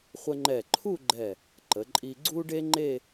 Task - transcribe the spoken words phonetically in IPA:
χʷ ə˧ ŋ͡ǃ ɛ˧˩ ǃʰ u˥˧ ɡ͡ǃ ɛ˧˩ | ǃ ə˩˧ ǃʼ i˧ ɡ͡ǀ u˥ ɖ e˥ ŋ͡ǃ e˥˧

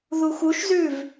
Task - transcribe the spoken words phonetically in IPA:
ð u x u ʃ z ʉ v

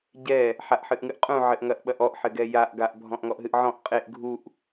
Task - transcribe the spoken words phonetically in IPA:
ɟ ɛ | ħ a ʔ ħ ɨ ʔ ŋ ɨ ʔ qʼ ũ ʕ ɘ ʔ ŋ ɐ ʔ ɓ ɐ ʔ ɔ ʔ ħ ɘ ɡ ɛ j a ʔ ɡ a ʔ bʱ ɔ̃ ʔ ŋ ɔ ʔ ɦ ɨ ʔ ʕ ɔ̃ ʔ qʼ e ʔ ɡʱ u ʔ

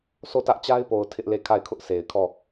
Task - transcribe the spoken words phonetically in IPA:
sʰ o˦˨ t ä˦ ʔ t͡ɕ a˦ ɪ̯ p o˨ ʊ̯ tʰ ɪ˦ ʔ l e˦˨ kʰ a˦˨ ɪ̯ kʰ ʊ˦ ʔ sʰ e˨ ɪ̯ kʰ ɔ˦˨

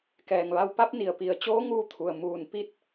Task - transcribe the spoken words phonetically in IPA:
k ɛː˩ ŋ ʋ a˧ w p a˧˥ p̚ n i˩ ə̯ p i˩ ə̯ t͡ɕ oː˧˥ ŋ uː˧ t̪ʰ u˩ ə̯ m uː˧˩ n p i˥˨ t̚

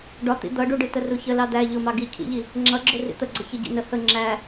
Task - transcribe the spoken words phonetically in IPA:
ɖ ɒ t̪ ḭ d̪ ʌ ɖ u ɖ ɪ t ə r u ç ə l ɑ d̪ æ ʎ ʊ m ɑ ɡ i cʰ ḭ ʎ i | ŋ͡ǁ ʌ ɡ͡ǁ ʊ r ḭ t̪ ə ɡ͡ǀ ʌ ç i ɟ ḭ n ə h ə ŋ͡ǁ æ

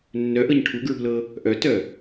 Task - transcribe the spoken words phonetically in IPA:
nː œ ʔ ɤ ɲ ʈʰ u ɡ ɹ ṳ l ɤ | ʔ œ t œ

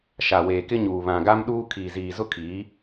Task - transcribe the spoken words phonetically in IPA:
ʃ a˨ w eː˨ k ɪ˦ ɲ uː˨ β ã˨ ɡ a˦ m ɗ uː˦ kʰ iː˨ z iː˨ z ʊ˦ kʰ iː˨˦

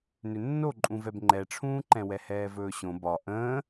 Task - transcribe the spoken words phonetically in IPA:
n ʏ nː o ǃʼ ũ v ɛ b ŋ͡ǃ ɛ ʈ͡ʂʰ ũː ǃ ɛ̃ w ɛ h ɛː v ɵː ɕ õ b ɒ ʔ ə̃ː

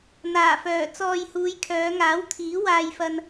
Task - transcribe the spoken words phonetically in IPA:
n̪ aː˨˩ f œː˨˩ t͡s ɔː˨ j h uː˨˧ j kʰ œː˨˧ ŋ aː˨˥ w t̪ʰ iː˨˥ w aː˧ j f ɐ˧ n

